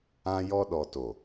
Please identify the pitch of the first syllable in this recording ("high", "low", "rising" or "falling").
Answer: high